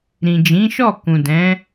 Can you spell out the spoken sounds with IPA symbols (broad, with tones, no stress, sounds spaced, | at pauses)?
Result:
ɾ ĩ˨ d͡ʒ ĩ˨˦ ʃ ɔ˦˨ k ũ˨ d ɛ̃˨˦